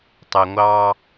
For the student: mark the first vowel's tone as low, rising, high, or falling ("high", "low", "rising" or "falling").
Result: low